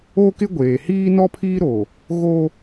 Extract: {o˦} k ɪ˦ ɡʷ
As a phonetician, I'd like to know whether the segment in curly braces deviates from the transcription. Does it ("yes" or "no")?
no